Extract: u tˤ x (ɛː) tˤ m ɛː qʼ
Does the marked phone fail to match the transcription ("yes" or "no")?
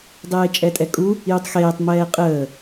yes